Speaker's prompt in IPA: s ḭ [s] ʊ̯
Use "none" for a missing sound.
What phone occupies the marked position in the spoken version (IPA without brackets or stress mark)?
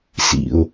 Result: none